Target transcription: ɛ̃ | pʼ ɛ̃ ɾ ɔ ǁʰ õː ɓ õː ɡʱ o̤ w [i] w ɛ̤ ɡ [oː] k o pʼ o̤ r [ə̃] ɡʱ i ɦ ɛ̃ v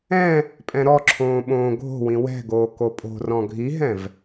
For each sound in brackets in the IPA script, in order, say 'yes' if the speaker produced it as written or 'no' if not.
no, yes, no

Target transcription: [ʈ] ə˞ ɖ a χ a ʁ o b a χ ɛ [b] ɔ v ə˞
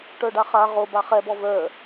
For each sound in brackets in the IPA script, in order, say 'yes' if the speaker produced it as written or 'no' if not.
yes, yes

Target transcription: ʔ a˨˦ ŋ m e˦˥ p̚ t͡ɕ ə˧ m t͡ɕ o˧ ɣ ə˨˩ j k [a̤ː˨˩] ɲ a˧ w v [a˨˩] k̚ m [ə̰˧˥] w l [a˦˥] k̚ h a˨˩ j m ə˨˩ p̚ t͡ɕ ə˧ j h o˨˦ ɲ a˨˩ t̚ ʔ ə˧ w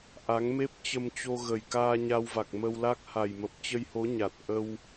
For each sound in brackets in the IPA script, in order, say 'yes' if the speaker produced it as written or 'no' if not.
no, yes, no, yes

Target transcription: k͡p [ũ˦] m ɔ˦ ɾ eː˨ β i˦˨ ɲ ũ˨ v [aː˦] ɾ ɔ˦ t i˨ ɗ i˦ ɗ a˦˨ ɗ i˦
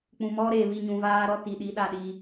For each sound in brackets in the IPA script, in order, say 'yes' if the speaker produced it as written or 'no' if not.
no, yes

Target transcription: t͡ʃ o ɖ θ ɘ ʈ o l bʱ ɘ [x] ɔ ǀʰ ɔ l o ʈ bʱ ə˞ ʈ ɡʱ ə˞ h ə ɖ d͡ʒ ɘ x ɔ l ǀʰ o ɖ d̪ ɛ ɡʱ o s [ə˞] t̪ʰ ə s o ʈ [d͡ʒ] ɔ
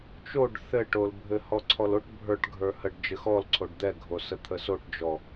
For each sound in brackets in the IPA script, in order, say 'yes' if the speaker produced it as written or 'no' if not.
no, no, yes

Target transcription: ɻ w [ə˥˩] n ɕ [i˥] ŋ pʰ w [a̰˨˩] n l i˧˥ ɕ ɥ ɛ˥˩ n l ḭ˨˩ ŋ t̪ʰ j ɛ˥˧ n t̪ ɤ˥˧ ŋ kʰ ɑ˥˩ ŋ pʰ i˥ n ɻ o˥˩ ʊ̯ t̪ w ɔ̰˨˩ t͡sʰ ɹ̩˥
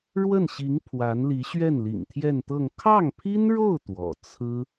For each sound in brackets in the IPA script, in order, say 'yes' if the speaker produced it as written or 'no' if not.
yes, no, no

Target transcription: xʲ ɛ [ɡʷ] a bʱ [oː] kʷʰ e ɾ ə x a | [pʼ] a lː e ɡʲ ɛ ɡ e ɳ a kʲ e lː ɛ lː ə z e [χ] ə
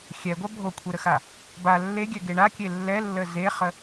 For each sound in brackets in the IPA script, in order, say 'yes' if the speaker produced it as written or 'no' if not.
yes, no, no, yes

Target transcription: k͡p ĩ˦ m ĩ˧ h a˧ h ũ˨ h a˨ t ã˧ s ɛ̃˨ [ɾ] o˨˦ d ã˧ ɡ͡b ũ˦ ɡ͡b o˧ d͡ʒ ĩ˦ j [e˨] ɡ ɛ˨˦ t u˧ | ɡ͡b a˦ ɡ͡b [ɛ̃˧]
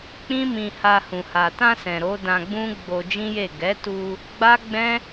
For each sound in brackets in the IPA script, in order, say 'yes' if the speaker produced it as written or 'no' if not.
yes, no, no

